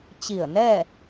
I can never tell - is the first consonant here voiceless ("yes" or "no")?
yes